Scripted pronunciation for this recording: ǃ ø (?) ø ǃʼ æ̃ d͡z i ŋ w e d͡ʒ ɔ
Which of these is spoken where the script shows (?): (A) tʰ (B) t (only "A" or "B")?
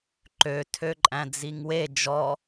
A